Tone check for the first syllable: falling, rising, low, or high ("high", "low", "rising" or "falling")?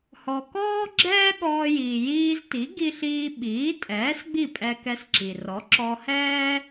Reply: low